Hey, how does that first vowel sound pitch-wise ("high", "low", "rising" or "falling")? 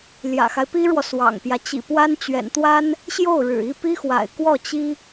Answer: low